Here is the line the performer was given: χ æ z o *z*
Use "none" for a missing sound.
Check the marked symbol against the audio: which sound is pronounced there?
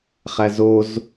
z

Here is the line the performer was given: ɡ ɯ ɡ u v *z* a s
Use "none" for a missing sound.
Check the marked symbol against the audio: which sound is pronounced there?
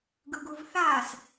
θ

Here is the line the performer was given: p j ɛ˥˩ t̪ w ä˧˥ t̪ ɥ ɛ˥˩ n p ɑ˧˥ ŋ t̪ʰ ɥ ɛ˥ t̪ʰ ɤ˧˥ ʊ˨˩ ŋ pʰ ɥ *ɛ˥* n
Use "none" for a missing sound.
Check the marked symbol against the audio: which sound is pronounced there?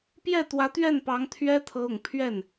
ɛ˥˩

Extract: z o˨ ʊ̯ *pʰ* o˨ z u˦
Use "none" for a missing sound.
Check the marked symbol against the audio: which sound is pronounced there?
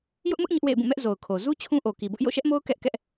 kʰ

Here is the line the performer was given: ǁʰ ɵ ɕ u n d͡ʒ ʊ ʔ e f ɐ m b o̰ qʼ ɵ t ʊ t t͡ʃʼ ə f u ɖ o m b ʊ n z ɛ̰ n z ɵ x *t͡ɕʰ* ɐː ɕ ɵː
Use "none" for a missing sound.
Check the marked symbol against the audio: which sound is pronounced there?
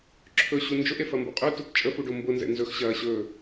ɕ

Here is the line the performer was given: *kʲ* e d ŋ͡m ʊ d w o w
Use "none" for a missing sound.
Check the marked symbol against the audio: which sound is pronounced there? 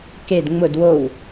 k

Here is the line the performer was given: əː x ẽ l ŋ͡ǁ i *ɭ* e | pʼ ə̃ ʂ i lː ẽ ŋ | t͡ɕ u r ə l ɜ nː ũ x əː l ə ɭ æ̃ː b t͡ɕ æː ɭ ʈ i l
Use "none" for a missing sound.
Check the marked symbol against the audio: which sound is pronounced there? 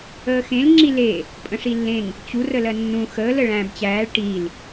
l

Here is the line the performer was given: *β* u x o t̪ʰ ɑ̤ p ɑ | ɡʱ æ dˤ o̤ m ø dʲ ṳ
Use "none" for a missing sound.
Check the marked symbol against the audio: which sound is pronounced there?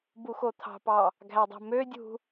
b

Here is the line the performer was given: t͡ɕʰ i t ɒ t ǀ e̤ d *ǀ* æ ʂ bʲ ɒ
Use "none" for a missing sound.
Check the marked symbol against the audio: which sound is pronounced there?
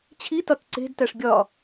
t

